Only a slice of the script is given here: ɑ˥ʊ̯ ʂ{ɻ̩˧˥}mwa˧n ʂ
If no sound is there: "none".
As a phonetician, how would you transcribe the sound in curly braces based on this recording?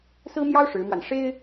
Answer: ɻ̩˧˥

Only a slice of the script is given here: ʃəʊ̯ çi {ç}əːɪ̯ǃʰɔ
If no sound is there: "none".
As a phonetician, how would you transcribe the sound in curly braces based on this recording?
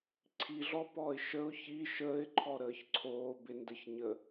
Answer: ʃ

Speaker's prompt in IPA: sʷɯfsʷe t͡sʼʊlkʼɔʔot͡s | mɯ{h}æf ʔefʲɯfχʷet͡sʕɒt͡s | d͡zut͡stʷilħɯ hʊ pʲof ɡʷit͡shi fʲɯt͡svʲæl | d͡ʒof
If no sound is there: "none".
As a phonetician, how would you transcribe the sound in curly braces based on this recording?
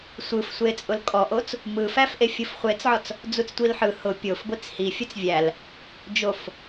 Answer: f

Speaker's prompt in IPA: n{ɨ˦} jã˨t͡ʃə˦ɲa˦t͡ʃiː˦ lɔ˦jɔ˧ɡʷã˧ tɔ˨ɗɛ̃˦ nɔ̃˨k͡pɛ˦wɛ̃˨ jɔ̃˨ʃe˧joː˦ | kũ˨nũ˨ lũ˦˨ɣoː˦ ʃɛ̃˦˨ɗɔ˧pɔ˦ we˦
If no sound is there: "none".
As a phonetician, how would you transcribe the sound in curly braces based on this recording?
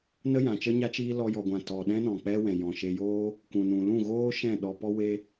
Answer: ə˦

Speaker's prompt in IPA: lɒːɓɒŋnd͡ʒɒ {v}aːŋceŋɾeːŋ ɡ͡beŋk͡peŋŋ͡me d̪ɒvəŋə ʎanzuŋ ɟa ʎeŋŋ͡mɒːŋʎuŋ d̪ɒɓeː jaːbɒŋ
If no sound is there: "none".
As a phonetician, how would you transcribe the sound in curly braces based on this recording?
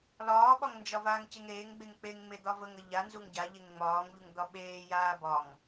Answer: v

